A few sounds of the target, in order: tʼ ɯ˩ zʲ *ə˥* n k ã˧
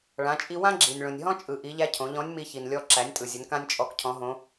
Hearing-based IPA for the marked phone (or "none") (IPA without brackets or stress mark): ə˩˧